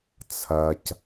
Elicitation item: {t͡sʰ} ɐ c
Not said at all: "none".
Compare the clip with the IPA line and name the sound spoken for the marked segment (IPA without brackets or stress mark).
t͡sʰ